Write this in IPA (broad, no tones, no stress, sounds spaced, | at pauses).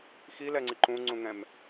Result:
x i l ɛ ŋ͡ǀ i ǃ ũ ŋ͡ǀ ũ ŋ ɛ̃ m